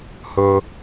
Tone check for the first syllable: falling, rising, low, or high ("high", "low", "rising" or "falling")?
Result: high